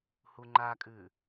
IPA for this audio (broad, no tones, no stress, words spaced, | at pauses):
huŋ͡ǃakʼʉː